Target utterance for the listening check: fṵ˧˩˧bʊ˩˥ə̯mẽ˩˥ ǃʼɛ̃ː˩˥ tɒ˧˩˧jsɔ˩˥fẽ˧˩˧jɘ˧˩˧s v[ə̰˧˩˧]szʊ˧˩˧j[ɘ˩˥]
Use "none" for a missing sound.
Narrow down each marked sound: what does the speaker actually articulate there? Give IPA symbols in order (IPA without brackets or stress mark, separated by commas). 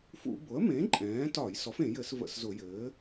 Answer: ə̰˧˩˧, ɘː˩˥